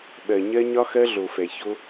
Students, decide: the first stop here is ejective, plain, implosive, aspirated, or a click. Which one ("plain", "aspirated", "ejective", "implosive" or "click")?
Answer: implosive